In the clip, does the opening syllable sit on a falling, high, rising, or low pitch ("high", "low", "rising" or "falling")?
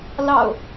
low